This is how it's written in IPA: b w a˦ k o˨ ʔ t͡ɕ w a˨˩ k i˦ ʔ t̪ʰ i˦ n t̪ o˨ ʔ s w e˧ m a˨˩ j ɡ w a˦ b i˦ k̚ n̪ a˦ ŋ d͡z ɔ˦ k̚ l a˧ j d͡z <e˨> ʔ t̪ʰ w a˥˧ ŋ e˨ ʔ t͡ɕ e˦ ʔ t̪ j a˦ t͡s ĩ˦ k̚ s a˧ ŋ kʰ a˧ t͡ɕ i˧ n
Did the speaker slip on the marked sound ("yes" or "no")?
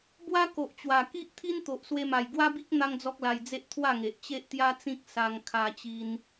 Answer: yes